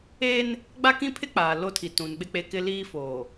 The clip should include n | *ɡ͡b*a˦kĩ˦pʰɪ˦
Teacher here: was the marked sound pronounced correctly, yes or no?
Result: yes